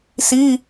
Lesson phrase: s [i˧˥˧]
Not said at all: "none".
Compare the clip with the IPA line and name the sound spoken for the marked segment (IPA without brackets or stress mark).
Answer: i˧˥˧